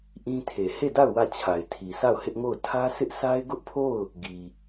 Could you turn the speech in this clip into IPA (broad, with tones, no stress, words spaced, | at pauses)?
ʔĩ˦tʰe˨ he˦˨da˦˨ʊ̯ wä˦˨t͡ɕʰa˨ɪ̯ tʰi˨sʰa˦˨ʊ̯hɪ˦ʔŋo˦˨ʊ̯ tʰä˦sʰɪ˦ʔ sa˦ɪ̯ɡʊ˦ʔpʰo˦˨ʊ̯ | ɡi˨